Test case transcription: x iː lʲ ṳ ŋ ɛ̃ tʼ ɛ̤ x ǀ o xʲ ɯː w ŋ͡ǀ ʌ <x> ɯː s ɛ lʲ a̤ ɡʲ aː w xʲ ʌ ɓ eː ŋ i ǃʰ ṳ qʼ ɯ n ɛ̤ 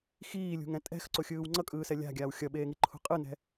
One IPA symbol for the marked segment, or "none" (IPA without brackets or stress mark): kʼ